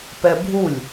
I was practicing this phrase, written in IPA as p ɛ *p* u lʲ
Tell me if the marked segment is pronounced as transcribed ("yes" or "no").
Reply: no